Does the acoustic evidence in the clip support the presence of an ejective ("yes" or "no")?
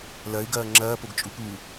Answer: yes